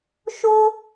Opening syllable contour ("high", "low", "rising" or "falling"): high